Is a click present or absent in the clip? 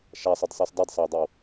absent